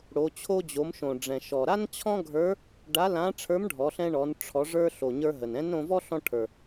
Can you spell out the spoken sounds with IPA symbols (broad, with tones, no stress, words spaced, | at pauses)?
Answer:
ɽo˩˧ t͡ɕʰo˧d͡ʑo˩˧mʃõ˩ ɖ͡ʐɛ̃˩ʃɔ˩ɾa˥n t͡ɕʰɔ̃˥ɡʱə˞˧˥ | ɖa˧˥lã˧˥ ʈ͡ʂʰə˞˧˥mɖʱɔ˩˧ɬɛ̃˧ɳɔ˩˧n ʈ͡ʂʰɔ˩˧ʐə˞˧ɬo˩ ɲə˞˧ɦə˩n ɛ̃˧˥nɾõ˧vɔ˥ ɬɔ̃˧ʈʰə˞˩